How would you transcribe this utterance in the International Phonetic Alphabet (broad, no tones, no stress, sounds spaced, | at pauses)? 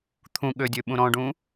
t̪ʰ ũ ɠ ø dʲ ø ɓ ũ ɾ ɔ̃ ɖ ũ